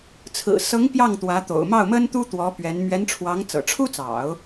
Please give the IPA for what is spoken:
t͡sʰ ɹ̩˨˩ s ɤ˧˥ ŋ p j ɑ˥˩ ŋ t̪ w ä˧˥ t̪ o̰˨˩ ʊ̯ m ɑ˥˩ ʊ̯ m ə˥ n t̪ u˥ t̪ w ɔ˧˥ p ɥ ɛ˧˥ n m ɥ ɛ˧˥ n ʈ͡ʂʰ w ɑ˧˥ ŋ t͡s ɤ̰˨˩ ʈ͡ʂʰ u˥ t͡s ɑ̰˨˩˦ ʊ̯

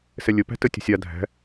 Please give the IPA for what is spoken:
s ɛ lʲ ə p æ̤ t ə tʲ ə̤ sʲ a dʱ æ̤

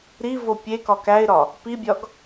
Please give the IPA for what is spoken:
ɾ i v o pʲ e k ɒ k æ ɪ̯ ɾ ɒ | p i bʲ ɒ ɡ

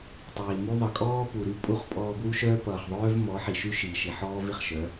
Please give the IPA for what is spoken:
tˤ iː˨ m u˦ ðˤ ʌ˨ kʼ ɔː˦ p u˨ ɾ y˦ pʼ u˦˨ χ pʼ ɔː˧ b w u˦ ʃ œː˦ p ʌː˨ χ ðˤ œː˦ v m ɔ˨˦ ħ i˨ ʃ y˦ ʃ iː˨ ʃ i˨ ħ ɔː˦ v i˨ χ ʃ œ˨˦

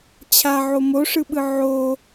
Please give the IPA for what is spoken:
t͡ɕʰ a ʕ o m o ʂ ɯ ɓ ɯ ʕ o

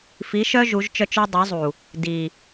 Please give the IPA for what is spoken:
f i˨˦ ʃ œ˦ ʒ u˨˦ ʒ t͡ʃ œ˦ t͡ʃ œ˦ dˤ œ˨˦ zˤ u˨ | d i˨

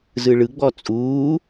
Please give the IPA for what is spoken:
z ɯ ɭ ɯ ɡ͡b ɔ t͡sʼ uː

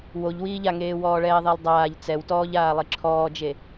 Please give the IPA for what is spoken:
w o ʎ w iː ʎ a ŋ eː w ɔː ɭ ɛː ðˤ i lˠ dˤ aː ʎ t͡s ɛ w t ɔː ʎ aː lˠ i ǁʰ ɔː d͡ʒ e

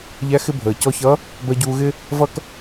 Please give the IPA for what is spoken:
ʎ æ˧˥ x ɪ˥ bʱ əː˩ c ɔ˧ ç ʌ˧˥ | b ɜ˧ ɟ uː˧ ɣ ɪ˥ | v ʌ˥ k

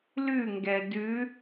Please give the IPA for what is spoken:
l ʉ ŋ ɡ ɛ d ʉ

